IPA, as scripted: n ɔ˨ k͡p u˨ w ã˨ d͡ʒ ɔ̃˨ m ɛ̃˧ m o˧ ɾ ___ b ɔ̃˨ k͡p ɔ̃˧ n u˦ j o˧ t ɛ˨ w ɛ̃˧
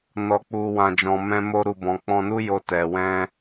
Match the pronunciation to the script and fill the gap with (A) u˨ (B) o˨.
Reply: A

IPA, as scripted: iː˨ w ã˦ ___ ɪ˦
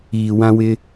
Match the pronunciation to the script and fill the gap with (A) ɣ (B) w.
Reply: B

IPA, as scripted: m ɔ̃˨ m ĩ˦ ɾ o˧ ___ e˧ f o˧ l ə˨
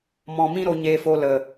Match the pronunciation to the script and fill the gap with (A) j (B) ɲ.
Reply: B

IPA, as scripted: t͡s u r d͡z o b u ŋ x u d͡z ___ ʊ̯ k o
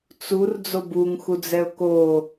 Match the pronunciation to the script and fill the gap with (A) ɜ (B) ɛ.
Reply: B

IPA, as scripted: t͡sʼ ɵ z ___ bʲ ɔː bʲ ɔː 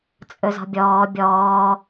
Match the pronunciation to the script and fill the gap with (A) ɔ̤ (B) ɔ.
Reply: A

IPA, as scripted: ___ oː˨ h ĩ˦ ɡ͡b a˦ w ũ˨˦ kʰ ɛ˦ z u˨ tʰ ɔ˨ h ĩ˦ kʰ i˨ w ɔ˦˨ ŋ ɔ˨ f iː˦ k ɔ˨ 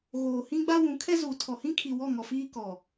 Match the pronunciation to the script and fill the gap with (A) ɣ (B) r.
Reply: A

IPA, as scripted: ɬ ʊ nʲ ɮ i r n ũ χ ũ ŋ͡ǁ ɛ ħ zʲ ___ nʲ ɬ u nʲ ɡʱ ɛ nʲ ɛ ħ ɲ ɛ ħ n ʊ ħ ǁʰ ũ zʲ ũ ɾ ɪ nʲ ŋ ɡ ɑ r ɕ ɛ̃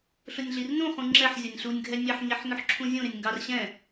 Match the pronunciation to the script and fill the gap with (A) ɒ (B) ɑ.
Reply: A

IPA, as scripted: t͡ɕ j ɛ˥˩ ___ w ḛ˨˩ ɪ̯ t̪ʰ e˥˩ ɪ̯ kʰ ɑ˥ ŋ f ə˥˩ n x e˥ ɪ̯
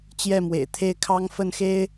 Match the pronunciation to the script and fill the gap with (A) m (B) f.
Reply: A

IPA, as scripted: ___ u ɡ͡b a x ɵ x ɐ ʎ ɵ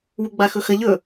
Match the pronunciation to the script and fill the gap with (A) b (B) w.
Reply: B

